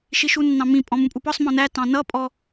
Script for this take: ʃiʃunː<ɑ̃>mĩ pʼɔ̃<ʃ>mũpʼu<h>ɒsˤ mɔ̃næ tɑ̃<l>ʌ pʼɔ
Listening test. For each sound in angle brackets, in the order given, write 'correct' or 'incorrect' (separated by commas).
correct, incorrect, incorrect, incorrect